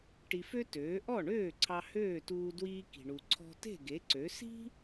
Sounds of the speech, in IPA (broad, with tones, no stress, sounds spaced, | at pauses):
ʈ i˧ f ø˥ t øː˩˥ ʔ ɔ˥˩ ɳ øː˥˩ ǀʰ ɑ˧ h øː˥˩ t uː˧ d w iː˧ k i̤˩ ɳ u˩ ǀʰ ɔ̤˧ t e̤˥˩ ɡ e˩˥ ǀ ø˩˥ s i̤˥